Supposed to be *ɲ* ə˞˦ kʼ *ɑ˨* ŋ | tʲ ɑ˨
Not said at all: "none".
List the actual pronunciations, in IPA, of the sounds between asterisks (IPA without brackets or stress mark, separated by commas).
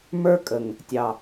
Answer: m, ə˨